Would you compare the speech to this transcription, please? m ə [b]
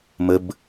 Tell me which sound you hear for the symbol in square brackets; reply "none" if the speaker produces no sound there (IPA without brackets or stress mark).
b